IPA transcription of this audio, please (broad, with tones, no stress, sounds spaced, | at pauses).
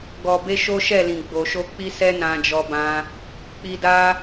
ɡ ɔ˨ b e˧ ʃ o˦ ʃ ɛ˦˨ l ĩ˨ ɡ͡b o˨ ʃ o˧ k͡p i˦ s ɛ˦ n ã˧ d͡ʒ ɔ˧ b ã˧ | k͡p i˧ d a˦